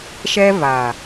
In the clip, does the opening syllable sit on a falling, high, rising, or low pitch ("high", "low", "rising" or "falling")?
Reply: high